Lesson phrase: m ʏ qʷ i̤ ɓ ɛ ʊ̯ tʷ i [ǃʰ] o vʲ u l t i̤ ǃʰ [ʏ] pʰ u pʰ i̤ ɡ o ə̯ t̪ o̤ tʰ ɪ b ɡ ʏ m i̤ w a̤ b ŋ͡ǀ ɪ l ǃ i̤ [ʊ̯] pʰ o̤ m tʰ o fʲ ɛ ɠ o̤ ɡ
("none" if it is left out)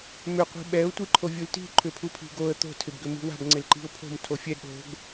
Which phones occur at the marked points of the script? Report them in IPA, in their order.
ǃʰ, ʏ, ʊ̯

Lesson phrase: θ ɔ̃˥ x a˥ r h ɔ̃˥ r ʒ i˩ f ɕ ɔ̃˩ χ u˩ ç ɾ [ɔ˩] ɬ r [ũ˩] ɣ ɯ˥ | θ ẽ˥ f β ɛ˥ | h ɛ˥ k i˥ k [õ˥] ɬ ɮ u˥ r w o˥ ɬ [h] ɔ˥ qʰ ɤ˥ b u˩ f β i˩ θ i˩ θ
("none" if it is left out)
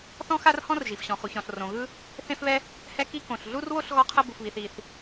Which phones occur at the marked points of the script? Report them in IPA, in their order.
ɔ̃˩, õ˩, õ˩, ɣ

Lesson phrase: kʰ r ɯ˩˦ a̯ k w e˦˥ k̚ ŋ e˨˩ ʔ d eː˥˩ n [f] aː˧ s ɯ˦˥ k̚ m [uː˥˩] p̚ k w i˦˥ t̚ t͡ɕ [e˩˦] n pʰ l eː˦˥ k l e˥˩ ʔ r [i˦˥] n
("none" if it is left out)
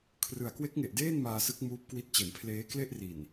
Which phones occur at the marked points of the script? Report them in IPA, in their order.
m, uː˦˥, e˩˦, i˨˩

